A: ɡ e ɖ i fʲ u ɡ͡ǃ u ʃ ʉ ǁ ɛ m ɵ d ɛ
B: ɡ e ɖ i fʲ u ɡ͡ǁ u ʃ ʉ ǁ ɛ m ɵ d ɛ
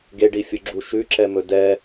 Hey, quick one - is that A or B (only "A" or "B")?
B